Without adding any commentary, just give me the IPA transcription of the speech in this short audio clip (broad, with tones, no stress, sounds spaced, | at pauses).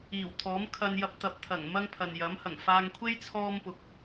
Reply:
iː˨˩ w t̪ʰ ɔː˨˥ m kʰ ɐ˧ n j ɐ˧ p̚ t̪ ɐ˨ p̚ t̪ʰ ɐ˨˩ ŋ m ɐ˥ ŋ pʰ ɐ˨ n j ɐ˨˥ m h ɐ˨˩ ŋ f aː˧ ŋ kʷʰ e˥ j t͡sʰ ɔː˥ m p ʊ˨ k̚